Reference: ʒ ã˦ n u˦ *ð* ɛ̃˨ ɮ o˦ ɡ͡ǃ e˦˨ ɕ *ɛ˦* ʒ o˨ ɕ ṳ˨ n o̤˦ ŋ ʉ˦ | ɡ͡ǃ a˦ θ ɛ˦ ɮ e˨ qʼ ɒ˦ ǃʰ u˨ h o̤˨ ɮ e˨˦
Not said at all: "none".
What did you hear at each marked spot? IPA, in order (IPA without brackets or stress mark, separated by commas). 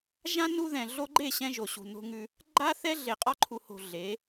ð, ɛ̃˦